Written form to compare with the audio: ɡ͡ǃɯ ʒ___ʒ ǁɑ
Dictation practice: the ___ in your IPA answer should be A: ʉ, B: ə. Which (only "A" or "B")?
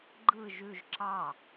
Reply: A